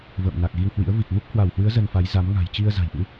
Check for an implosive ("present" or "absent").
absent